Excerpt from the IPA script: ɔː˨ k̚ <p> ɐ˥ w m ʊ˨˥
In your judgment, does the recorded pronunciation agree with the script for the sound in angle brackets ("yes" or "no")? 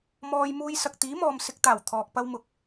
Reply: yes